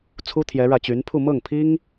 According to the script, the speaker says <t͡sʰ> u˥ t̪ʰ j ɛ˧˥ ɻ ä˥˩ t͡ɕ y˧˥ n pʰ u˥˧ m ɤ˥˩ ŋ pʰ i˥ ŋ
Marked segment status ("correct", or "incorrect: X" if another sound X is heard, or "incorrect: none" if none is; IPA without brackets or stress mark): correct